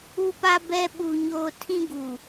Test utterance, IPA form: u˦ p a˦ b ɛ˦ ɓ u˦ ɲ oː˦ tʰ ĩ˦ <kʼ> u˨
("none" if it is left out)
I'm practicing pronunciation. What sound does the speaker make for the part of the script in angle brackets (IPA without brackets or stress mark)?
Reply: ɡ